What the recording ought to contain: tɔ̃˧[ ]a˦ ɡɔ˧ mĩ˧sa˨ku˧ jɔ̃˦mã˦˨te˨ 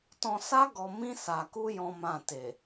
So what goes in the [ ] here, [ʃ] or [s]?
s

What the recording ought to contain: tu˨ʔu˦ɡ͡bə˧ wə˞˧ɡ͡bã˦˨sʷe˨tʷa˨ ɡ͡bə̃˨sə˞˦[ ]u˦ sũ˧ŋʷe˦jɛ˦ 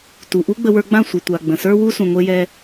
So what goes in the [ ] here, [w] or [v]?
w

